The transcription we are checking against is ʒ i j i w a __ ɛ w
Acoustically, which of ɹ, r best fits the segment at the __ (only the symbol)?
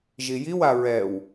ɹ